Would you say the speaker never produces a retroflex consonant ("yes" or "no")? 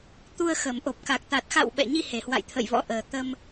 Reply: yes